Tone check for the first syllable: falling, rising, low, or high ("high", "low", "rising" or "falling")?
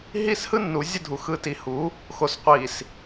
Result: falling